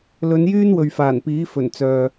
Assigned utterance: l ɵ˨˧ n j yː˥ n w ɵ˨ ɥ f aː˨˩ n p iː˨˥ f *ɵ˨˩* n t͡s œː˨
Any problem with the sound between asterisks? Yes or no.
no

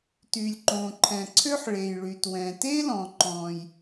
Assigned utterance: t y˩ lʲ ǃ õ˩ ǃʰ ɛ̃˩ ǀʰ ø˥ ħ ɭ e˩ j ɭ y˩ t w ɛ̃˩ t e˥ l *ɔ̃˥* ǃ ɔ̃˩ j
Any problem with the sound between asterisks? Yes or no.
yes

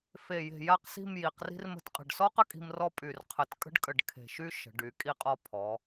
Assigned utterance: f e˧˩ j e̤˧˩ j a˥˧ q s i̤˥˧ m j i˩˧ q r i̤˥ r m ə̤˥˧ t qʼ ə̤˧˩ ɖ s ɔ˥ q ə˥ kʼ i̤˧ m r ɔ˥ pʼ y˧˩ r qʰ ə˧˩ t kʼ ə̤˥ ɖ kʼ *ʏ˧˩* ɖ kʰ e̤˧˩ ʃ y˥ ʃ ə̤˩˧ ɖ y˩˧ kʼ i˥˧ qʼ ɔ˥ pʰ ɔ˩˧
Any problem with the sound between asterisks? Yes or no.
yes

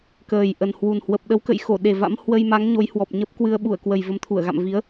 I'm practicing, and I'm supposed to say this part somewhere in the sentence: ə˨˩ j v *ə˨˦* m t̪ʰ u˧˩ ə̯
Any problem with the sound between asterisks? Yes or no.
no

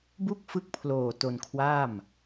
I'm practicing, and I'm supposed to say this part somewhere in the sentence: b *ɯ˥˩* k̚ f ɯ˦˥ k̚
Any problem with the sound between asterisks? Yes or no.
yes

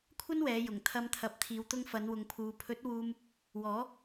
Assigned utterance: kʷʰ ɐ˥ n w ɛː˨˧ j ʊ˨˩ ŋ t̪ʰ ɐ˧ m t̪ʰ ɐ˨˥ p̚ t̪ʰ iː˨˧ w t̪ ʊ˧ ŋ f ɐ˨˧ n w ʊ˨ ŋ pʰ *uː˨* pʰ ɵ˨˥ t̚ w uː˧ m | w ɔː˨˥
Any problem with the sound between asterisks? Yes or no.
no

